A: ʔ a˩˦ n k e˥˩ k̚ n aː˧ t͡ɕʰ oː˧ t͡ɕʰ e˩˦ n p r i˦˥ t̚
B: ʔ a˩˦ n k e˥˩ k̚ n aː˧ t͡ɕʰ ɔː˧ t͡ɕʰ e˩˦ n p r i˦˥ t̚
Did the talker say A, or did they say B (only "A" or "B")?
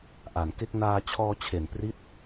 B